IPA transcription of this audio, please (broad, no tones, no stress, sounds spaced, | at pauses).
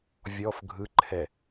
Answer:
vʲ ɔ f ɡʱ ɯ ǃʰ ɛ